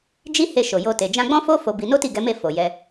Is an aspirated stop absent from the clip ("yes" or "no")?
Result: yes